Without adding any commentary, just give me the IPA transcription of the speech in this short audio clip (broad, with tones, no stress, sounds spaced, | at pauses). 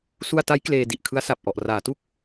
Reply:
s u˧ a̯ t a˦˥ j k l eː˧ d i˨˩ ʔ kʰ ɯ˦˥ a̯ s a˨˩ p̚ ʔ ɔ˨˩ ʔ r aː˩˦ t u˦˥ k̚